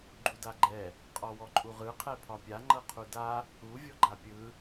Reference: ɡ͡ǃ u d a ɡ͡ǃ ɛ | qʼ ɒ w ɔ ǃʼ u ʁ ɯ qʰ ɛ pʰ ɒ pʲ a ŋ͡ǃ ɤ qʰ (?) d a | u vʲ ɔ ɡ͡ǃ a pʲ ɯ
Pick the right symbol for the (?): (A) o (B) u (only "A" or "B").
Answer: B